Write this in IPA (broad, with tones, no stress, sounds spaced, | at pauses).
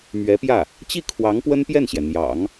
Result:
m ɥ ɛ˧˥ p j ä˥˩ | t͡ɕ i˥˩ kʰ w ɑ˧˥ ŋ p w ə˥ n p j ɛ˥˩ n ɕ j ɛ˩ n̪ j ɑ̰˨˩˦ ŋ